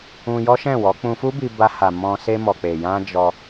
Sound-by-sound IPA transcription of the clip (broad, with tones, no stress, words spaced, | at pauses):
ũ˧jɔ˦ʃɛ̃˦˨wɔ˨˦ k͡pũ˧fu˦bi˧ ba˧ ha˨mɔ̃˧ se˧mɔ˨k͡pe˨ jã˧ d͡ʒɔ˧